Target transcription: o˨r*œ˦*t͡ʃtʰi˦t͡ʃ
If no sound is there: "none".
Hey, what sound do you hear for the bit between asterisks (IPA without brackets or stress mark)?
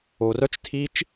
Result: œ˦